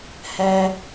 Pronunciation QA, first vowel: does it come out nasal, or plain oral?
oral